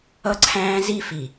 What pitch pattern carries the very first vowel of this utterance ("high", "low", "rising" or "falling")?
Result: high